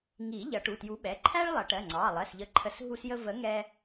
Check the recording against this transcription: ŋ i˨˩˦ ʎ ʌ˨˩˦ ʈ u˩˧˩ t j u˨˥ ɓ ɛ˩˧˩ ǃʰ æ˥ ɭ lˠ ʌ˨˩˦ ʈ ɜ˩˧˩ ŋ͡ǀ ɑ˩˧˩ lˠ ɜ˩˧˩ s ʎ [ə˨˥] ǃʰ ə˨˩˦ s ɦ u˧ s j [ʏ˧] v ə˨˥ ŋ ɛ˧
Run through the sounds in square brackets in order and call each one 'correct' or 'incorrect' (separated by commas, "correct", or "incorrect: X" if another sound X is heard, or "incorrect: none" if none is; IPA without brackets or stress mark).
correct, incorrect: ə˧